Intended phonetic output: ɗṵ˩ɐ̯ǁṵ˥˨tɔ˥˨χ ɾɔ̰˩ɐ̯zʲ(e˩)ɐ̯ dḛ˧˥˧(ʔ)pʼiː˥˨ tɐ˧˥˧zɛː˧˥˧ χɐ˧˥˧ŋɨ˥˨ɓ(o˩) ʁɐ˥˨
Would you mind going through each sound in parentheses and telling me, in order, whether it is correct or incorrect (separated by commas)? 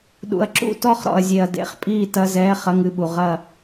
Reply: correct, incorrect, incorrect